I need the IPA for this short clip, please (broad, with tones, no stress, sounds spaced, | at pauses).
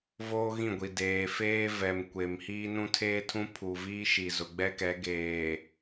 v oː˦ ɣ ĩ˦˨ ɡʷ i˨ d eː˨ f eː˦ v ɛ˨ m kʷ e˨ m h iː˦ n ũ˦ tʰ eː˦ tʰ ũ˦ pʰ u˨ v iː˦ ʃ i˨ z ʊ˨ ɡ͡b ɛ˦ k ɛ˨˦ ɡ eː˨